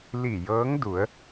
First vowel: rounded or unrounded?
unrounded